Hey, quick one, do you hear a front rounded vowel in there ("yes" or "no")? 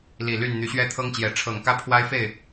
yes